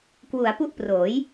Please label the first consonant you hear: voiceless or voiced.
voiceless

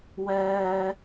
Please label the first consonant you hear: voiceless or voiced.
voiced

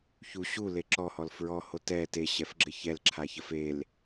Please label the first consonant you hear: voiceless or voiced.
voiceless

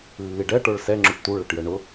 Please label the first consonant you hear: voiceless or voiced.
voiced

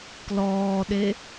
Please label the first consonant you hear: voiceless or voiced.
voiceless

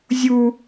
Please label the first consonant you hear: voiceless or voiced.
voiced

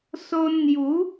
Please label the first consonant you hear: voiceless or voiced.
voiceless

